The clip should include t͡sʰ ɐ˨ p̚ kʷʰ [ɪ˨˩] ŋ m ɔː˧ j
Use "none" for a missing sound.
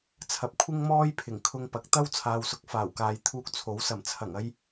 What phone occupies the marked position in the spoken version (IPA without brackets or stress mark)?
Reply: ɪ˥